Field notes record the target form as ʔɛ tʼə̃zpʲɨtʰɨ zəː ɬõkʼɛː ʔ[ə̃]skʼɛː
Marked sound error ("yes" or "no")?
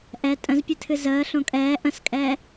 no